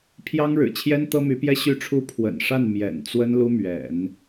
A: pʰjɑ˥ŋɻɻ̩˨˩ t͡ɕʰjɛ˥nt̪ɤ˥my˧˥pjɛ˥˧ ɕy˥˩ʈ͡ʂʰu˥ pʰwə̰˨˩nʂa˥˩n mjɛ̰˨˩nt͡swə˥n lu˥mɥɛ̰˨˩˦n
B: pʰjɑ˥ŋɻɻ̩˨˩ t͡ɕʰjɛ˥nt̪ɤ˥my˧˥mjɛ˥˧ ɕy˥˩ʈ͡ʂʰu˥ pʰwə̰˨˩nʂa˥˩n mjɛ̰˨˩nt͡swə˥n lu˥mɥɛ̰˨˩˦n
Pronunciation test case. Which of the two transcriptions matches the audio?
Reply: A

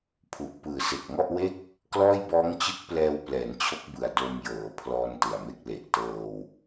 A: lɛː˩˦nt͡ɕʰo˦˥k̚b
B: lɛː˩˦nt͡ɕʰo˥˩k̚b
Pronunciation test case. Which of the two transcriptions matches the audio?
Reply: A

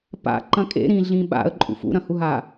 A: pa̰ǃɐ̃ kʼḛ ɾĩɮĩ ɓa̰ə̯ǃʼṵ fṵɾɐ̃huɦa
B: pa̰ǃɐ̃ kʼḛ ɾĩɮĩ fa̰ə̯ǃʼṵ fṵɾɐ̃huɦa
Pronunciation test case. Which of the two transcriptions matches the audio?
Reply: A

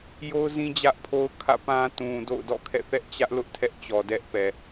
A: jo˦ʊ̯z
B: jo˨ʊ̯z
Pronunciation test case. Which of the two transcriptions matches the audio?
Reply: A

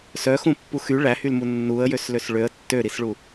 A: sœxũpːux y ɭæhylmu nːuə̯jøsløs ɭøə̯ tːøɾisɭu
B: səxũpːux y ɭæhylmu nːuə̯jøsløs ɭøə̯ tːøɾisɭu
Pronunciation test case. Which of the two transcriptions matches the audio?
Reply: A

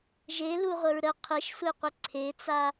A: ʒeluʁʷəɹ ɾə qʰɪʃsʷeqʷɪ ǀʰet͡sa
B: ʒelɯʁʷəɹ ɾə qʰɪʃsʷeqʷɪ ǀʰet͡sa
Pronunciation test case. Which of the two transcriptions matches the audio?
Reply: A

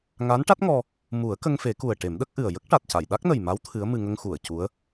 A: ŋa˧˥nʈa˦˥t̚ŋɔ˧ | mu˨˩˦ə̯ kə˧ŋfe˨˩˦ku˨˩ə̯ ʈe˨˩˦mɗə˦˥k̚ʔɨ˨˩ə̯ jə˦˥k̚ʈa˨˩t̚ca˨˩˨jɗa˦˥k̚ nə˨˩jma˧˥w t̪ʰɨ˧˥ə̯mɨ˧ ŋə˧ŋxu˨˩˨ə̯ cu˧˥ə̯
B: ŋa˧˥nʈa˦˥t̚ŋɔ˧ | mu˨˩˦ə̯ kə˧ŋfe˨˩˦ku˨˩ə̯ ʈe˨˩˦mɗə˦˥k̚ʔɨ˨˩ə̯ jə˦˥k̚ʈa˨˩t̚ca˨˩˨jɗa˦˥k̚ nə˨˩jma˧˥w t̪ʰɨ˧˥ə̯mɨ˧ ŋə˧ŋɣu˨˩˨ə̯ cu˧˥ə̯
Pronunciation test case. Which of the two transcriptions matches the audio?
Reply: A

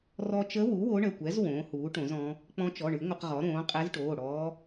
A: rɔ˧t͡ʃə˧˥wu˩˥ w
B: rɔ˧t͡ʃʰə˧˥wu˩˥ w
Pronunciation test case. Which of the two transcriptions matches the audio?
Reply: A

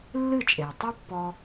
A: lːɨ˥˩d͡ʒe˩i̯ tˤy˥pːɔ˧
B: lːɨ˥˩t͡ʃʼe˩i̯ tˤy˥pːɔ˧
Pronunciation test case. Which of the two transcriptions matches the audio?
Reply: B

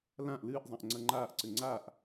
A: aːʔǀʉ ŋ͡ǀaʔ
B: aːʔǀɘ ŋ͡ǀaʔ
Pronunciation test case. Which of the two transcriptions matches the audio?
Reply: B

